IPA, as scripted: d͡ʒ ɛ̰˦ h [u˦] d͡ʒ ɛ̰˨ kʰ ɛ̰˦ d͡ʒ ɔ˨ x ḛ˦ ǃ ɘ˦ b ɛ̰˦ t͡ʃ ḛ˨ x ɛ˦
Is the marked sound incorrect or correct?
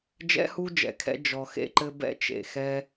correct